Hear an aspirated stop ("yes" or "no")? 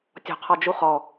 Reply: yes